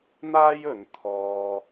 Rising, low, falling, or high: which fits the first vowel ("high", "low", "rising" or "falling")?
high